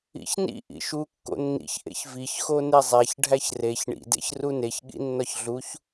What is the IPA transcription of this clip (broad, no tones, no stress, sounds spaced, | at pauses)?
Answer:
ḭ ç n ḭ ʔ ḭ ʃ u kː o̰ nː ḭ ç ʔ ḛ ç v i ç x o n e zˤ æ ç ɖʱ æ ç r e ç ɳ ḭ d ḛ ç r u n e ç ɠ ḭ nː ɒ ç ɮ u ç